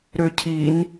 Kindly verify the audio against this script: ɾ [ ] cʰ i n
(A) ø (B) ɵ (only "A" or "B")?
A